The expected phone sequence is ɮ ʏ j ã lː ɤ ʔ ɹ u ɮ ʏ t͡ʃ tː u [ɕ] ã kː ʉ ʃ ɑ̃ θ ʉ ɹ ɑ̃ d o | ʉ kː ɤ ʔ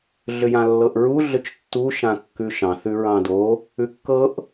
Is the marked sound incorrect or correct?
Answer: incorrect